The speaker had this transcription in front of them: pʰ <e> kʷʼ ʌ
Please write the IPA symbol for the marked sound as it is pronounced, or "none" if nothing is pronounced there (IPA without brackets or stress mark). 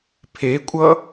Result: e